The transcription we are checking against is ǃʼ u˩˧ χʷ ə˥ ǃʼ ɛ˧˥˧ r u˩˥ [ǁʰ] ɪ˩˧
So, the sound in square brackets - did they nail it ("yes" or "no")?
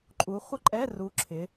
yes